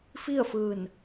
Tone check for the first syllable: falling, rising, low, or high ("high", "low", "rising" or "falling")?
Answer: falling